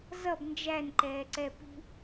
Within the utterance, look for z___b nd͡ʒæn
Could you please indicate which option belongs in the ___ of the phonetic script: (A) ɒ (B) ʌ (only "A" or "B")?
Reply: B